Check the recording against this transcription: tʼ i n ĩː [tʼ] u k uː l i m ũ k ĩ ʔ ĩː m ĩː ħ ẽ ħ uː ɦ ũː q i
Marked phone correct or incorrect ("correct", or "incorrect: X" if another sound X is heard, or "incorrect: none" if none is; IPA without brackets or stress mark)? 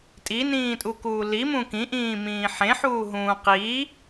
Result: correct